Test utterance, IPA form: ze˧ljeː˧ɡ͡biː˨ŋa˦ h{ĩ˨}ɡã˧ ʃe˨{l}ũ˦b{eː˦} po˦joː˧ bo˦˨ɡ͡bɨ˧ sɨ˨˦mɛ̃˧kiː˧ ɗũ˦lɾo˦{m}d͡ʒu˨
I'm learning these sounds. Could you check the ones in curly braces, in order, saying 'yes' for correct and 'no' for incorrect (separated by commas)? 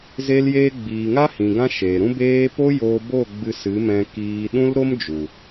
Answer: yes, no, yes, yes